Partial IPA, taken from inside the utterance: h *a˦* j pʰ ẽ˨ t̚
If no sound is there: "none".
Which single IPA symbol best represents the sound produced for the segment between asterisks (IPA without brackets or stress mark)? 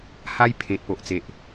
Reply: a˦